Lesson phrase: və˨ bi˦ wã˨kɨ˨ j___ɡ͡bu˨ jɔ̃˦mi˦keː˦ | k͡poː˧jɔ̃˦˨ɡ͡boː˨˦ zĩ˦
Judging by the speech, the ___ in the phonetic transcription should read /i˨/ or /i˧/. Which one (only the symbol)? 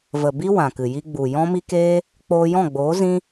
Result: i˧